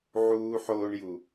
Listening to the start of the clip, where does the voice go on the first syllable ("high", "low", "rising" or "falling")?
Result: high